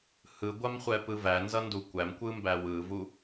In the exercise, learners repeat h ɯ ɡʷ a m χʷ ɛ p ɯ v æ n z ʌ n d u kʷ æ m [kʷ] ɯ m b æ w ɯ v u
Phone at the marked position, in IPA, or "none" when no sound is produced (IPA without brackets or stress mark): kʷ